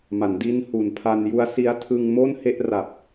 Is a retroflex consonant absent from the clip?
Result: yes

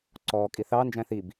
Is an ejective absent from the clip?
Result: no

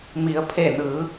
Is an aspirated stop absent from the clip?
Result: no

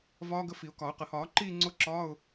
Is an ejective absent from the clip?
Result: yes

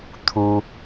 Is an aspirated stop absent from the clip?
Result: no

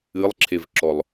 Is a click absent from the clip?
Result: no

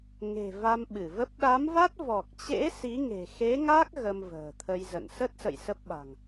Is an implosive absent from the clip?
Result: no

